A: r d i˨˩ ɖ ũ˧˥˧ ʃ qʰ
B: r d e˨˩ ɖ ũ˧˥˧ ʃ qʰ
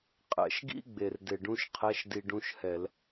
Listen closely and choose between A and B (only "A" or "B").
B